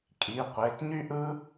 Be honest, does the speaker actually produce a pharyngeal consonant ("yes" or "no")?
no